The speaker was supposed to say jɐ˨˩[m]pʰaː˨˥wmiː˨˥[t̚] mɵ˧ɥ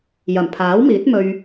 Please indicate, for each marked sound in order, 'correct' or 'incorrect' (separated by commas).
correct, correct